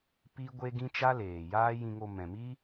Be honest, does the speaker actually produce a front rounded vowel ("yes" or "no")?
no